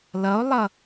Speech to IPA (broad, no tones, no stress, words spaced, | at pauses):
lʌo̯lˠʌ